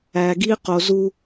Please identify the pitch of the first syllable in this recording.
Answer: low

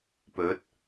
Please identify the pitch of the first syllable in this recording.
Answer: rising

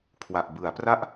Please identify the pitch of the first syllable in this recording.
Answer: low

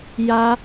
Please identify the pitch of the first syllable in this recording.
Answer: high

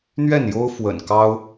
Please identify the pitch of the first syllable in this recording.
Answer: falling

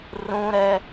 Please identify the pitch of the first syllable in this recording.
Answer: high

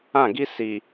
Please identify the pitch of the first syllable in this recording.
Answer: falling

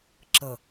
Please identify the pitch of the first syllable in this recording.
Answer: low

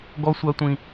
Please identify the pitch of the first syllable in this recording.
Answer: high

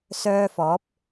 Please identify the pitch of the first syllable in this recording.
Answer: high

